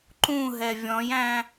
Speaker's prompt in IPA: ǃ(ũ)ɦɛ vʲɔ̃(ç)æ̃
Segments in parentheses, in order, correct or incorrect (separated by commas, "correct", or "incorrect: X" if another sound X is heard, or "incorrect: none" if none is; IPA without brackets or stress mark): correct, incorrect: j